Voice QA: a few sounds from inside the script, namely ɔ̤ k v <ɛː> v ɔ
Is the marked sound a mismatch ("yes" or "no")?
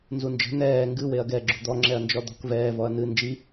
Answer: no